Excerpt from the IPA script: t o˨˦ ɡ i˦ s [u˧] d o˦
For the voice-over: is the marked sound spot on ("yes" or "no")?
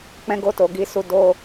no